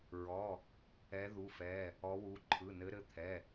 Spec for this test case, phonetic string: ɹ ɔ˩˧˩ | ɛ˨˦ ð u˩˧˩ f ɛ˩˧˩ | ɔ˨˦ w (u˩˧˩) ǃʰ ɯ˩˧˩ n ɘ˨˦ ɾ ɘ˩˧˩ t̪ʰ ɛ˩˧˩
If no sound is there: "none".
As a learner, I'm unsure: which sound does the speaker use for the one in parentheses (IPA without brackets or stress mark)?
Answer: u˩˧˩